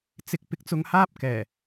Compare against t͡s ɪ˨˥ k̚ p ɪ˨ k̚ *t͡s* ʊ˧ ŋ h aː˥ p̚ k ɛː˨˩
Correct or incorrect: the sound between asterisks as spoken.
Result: correct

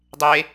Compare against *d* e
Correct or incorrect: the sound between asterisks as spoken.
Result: incorrect: dˤ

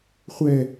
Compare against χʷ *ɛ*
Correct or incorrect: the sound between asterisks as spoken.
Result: correct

